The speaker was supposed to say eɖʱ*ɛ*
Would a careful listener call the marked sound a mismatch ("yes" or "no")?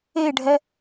no